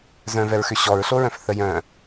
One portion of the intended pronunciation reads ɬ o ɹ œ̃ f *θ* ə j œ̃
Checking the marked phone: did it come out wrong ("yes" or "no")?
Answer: no